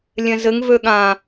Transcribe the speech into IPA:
lʲ ɛ̃ z ɘ ŋ v ø ɠ ã

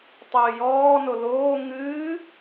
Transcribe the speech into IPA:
tˤ ɨː j ɔː n o l oː ŋ ɨː

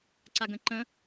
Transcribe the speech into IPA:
ǀ a ɡ ə̃ ǃ ə̃

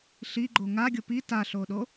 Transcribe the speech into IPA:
ɬ i ɡ͡ǃ o ŋ a ɡʲ o p i t a ɬ o ɗ o

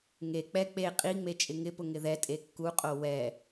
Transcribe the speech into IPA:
ŋ e k͡p ɛ k͡p e qʼ i ŋ͡m e t͡ʃʼ ɪ ŋ ɪ p ʊ ŋ ɪ ð ɛ tʼ e kː u qʼ o w ɛ

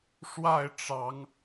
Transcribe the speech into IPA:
ʂ w a˥˩ ɪ̯ ʈ͡ʂ ɑ˧˥ ŋ

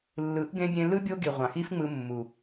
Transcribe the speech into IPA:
lː ɯ˨˦ ʔ ɡ ẽ˧ bʲ ẽ˧ l ɯ˦ bʲ o˦ ɡ i˨ ʁʷ ɑ̃˨ x i˦ f ŋ͡m ɯ˧ mː u˨

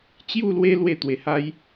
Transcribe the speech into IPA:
t͡ɕ j u˥˧ l w e˦ l w e˥˧ t̪ w e˧ h a˦ j

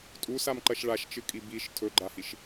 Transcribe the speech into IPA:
tʼ u s a m ǃ ɐ ʃ ɭ a ʃ t͡ʃ ɨ kʼ i b i ʃ tʰ ɵ ɡ͡ǃ a h i ʃ

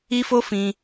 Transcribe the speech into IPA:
i˧ f o˧ f ĩ˧

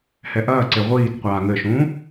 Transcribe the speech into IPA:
h ɛ ʔ ɐː ǀ e ʁʷ iː t qʷ aː ŋ ɘ ʃ ũː

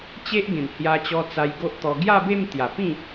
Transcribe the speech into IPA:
t͡ɕ e˦ ʔ ɡ ẽ˨˩ n h j a˧ t͡ɕ ɔ˧ t͡s a˧ j ɡ o˦ ʔ t̪ ɔ˧ ɡ j a˥˧ b e˥˧ m t̪ j a˨˩ p ĩ˥˧

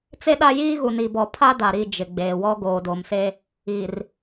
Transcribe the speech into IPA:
t͡s e˦ ɗ a˦ j iː˦ ɣ u˨ n i˨ b ɔ˨ pʰ a˦ d a˨ ɾ i˦˨ d͡ʒ ɪ˨ ɡ͡b eː˨ w ɔ˦ ɡ oː˨ d o˨ m s e˦ | i˨ r

